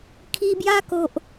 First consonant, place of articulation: velar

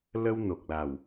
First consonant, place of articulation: alveolar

